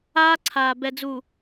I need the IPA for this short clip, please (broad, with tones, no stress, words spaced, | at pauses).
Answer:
aː˦ǀʰaː˨ bɛ˨d͡zu˨